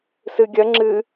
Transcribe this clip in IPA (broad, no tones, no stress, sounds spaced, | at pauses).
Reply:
s ɨ ɡʲ ɐ ŋ͡ǁ ɨ